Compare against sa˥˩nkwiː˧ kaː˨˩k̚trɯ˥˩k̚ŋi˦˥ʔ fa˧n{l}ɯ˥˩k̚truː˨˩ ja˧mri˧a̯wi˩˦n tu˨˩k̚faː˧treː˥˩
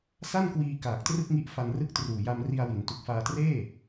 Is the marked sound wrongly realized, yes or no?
yes